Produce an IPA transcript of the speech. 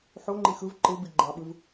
ħoŋ͡ǃi xɯv ǃɯbi ɡ͡ǃɑɓɯv

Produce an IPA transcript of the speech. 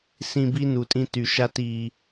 sĩ˨ bi˦nu˨tʼĩ˦ ty˨ʃa˦t i˦

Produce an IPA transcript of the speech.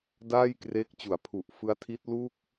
daː˥˩jkreː˦˥k̚t͡ɕu˩˦a̯pʰu˨˩ʔ fɯ˦˥a̯ tʰi˦˥t̚lu˥˩k̚

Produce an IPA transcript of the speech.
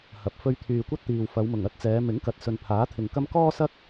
hɐ˨˥p̚fɵ˧ɥ t̪ʰyː˨kʷɐ˥t̚t̪iː˨w fɐ˨˧wmʊ˨˩ŋɐ˥t̚t͡sɛː˨˧ mɪ˨˥ŋkɐ˨t̚ sɵ˨npʰaː˨˥t̪ʰɪ˨ŋkɐ˥m kɔː˥sɐ˥k̚

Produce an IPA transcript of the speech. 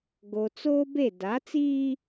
ɡo˨ t͡soː˦be˦˨ da˨˦t͡siː˦

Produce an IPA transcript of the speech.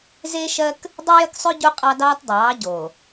zeː˦ʃɜ˦k | dˤʉ˦jə˦ksˤʉ˦ ɟu˦qʼɑ˦dɑː˦tdˤɑː˨˦ ɟo˨

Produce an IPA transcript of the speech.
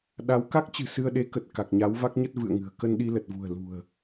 ɗa˨˦w ka˦˥k̚t͡ɕɨ̤˨˩ sɨ˧ə̯ɗe˨˦kə˨˩t̚ ka˨˩k̚ɲa˨˦wva˦˥k̚ɲə˦˥t̚ vɨ̰˧˨ə̯ŋɨ̤˨˩ə̯ kə˧n ɗi˧lə˨˩t̚vṳ˨˩ə̯ lṳ˨˩ə̯

